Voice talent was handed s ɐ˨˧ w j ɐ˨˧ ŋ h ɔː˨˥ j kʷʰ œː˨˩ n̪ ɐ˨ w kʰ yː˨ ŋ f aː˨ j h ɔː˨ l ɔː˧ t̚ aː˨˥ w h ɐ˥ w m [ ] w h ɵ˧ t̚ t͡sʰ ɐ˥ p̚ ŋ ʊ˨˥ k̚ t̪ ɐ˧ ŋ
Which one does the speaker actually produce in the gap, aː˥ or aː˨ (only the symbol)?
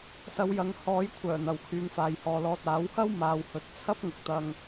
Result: aː˨